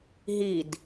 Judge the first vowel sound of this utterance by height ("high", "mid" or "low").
high